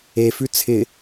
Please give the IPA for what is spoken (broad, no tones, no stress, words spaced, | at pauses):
efʉ t͡sʰɪ